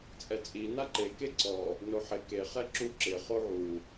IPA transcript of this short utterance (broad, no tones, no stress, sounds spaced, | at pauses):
t͡sʼ ɛ t͡sʼ i n a ǃ e k e ǀ ɔ | n o ħ ɪ k e χ ɛ ǁ u ǁ ɪ χ o ʕ u